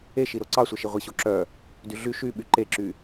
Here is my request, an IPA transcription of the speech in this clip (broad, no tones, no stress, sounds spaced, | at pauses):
e ʃ i ɾ o ǀ ɑ sʷ ɛ ʃ i ʁʷ i ɕ o ǁ œ | d y ɮ y ʃ y ɓ y ǃ e ǁ y